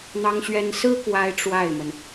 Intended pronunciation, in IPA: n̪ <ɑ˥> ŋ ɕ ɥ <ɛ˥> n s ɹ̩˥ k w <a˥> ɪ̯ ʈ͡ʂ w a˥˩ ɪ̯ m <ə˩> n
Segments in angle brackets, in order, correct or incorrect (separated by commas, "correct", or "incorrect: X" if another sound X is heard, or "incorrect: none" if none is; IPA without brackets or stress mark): correct, correct, correct, correct